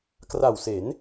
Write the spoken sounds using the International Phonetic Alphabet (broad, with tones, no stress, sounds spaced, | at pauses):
k r a˨˩ w s e˩˦ n